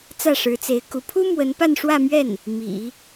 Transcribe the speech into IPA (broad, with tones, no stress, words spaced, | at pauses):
t͡sä˥˩ʂɻ̩˧˥t͡se˧˥ɪ̯ku˧˥ pʰu˥ mwə˧˥npa˥˧nʂwä˥˧mɥɛ˥˩n | mḭ˨˩˦